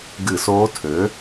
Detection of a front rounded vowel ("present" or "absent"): present